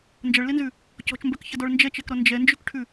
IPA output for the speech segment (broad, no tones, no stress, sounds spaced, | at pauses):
n d͡ʒ ɐ ɭ l e n z ʉ | c ɔ̤ t͡ʃ m b œ k ç ɐ d ɔ ɭ n d͡ʒ ɛ t͡ʃ ɛ k ɾ ɔ n d͡ʒ ɛ n d͡ʒ ʉ k ʈʰ ʉ